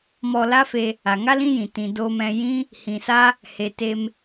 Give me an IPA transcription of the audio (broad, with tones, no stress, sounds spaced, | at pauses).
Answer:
m ɔ˧ l a˦ f e˧ | a˨ ŋ a˦ l ĩ˦ j ĩ˨ t ĩ˨ d oː˧ m ɛ̃˧ j ĩ˦ | h ĩ˨ s a˦ | h e˨ t e˧ m